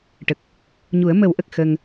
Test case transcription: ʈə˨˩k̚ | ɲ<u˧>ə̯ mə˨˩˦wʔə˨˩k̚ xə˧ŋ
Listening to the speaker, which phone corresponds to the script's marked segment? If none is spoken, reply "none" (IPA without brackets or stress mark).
u˨˩˦